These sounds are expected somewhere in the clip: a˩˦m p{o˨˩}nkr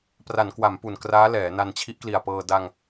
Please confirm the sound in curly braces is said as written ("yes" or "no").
no